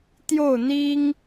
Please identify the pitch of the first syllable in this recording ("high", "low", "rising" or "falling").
falling